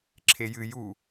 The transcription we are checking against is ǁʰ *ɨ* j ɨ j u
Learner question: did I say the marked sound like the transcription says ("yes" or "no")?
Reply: no